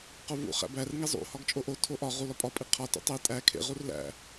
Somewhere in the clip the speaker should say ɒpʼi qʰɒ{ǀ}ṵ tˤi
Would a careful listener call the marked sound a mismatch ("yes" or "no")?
yes